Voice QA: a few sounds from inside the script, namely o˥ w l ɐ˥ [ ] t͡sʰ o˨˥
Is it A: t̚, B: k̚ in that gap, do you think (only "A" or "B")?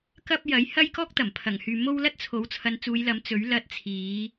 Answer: A